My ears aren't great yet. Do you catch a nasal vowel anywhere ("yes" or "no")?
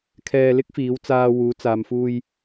no